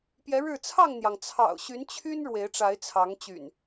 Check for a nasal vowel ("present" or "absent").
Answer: absent